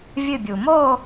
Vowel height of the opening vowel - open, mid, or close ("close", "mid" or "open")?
close